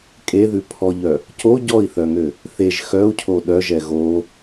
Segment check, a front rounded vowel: present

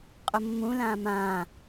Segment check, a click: absent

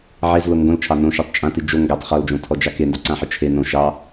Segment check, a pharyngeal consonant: present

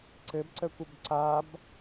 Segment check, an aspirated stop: absent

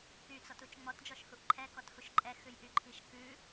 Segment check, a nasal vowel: absent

